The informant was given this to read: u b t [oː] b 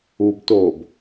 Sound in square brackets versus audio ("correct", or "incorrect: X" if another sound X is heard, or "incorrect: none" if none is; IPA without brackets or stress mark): correct